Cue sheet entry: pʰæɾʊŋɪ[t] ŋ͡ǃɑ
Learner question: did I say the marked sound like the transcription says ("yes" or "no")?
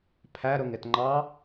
yes